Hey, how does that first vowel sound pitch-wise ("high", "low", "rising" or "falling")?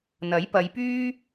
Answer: rising